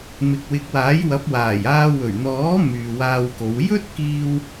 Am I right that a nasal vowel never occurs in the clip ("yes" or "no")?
yes